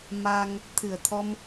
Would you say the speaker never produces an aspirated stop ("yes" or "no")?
no